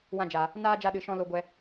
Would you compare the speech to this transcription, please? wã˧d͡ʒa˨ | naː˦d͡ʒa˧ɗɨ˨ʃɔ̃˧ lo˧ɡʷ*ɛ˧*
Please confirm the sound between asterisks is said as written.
yes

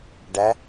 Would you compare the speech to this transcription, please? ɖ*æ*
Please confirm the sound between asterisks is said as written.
yes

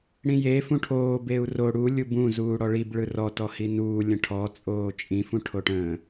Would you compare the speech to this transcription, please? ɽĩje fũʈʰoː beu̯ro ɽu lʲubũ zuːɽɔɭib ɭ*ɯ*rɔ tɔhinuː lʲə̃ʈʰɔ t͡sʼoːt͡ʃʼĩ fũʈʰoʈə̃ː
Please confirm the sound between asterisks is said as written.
yes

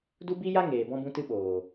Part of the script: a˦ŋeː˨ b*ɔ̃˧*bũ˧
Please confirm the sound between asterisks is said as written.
yes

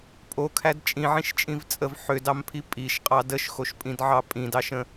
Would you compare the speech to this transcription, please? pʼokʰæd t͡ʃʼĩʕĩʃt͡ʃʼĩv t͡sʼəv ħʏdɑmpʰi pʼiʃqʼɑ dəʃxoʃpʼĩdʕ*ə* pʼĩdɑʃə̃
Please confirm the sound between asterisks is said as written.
no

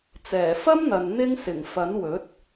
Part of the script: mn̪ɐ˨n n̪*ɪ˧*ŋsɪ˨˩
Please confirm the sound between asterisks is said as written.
yes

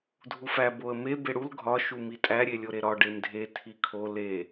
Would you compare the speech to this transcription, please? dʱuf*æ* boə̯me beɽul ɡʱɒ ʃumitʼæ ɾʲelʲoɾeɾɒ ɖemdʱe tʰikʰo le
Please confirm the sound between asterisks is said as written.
yes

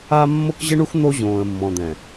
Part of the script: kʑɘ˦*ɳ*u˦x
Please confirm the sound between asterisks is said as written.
yes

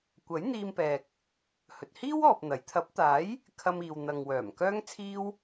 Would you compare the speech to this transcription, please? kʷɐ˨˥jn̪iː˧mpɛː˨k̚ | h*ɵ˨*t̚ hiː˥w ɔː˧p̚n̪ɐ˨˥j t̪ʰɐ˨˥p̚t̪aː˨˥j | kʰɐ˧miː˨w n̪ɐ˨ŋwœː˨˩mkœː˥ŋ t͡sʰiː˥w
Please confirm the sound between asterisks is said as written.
yes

